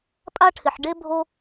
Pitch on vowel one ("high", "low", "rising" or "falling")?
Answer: high